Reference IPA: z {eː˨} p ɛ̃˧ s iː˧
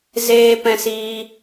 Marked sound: incorrect: eː˦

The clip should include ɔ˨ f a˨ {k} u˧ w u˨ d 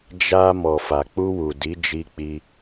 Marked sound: incorrect: k͡p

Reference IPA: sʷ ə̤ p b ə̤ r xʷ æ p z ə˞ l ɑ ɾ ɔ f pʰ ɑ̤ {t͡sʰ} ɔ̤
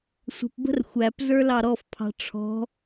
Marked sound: incorrect: ʈ͡ʂʰ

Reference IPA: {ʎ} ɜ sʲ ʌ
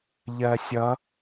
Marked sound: correct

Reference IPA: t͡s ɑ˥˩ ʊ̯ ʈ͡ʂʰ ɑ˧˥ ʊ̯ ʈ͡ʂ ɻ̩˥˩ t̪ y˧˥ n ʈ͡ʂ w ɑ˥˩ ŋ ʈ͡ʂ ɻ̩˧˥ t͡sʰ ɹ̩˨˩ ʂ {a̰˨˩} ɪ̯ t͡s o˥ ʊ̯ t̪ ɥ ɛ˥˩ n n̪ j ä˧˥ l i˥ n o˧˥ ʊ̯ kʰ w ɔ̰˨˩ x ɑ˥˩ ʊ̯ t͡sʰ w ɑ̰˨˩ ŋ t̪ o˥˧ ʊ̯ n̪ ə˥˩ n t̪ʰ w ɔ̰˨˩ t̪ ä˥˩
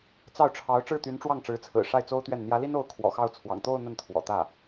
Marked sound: incorrect: a˥˩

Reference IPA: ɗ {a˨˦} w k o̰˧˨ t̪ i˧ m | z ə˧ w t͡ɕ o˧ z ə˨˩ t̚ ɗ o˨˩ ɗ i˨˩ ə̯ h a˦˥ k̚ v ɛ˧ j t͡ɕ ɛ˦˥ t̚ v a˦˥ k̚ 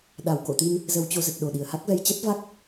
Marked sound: incorrect: a˨˩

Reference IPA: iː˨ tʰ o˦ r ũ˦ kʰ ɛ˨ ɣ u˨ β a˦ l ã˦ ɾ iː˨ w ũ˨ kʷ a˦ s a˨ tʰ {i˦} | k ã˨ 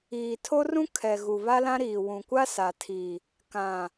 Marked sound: incorrect: i˨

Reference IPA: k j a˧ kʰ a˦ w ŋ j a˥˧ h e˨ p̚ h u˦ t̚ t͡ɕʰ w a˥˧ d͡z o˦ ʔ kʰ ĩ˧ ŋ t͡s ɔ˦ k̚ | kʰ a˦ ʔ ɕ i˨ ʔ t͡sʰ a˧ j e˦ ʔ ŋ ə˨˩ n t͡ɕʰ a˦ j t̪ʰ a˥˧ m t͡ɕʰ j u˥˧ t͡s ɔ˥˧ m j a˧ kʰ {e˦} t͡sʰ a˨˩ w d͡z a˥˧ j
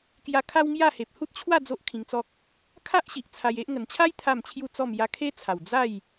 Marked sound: correct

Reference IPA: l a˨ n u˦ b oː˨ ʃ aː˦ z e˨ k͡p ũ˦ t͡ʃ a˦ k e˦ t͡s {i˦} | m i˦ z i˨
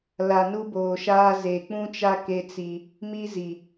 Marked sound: correct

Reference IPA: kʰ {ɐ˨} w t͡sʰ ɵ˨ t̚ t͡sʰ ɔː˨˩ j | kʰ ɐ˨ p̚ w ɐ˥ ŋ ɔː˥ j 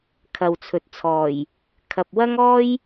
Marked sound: correct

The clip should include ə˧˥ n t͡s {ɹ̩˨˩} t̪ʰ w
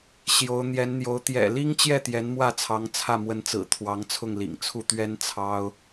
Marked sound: correct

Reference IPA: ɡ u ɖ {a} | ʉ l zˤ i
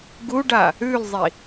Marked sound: correct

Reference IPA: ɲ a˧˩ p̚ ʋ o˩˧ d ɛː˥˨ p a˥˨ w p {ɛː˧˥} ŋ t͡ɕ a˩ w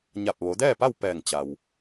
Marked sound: incorrect: ɛː˧˩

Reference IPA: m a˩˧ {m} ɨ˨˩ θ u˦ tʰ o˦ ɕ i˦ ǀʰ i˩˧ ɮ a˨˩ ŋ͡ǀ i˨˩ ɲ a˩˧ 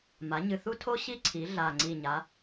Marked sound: incorrect: ɲ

